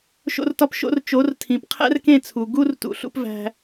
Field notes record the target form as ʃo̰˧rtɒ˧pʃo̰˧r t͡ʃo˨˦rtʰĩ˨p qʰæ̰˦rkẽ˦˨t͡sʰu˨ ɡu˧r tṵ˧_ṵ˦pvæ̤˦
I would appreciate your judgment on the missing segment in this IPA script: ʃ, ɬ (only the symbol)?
ɬ